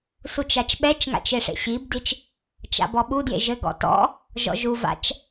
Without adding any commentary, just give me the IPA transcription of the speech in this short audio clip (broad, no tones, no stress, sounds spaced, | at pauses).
s u t͡ʃ a t͡ʃ ɓ ɛ t͡ʃ ŋ a̰ t͡ʃ e ʂ ḛ ɕ i b d i t͡ʃ | t͡ʃ a̰ b ɔ ɓ u d j ḛ ʒ ɘ ɡ ɔ̰ t ɔ̰ | ʒ ɔ̰ ʒ u v a̰ t͡ʃ